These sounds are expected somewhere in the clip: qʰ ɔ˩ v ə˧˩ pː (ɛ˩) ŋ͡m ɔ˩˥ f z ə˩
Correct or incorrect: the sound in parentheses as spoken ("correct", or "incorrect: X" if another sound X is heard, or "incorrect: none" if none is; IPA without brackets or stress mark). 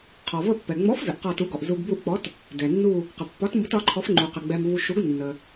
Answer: correct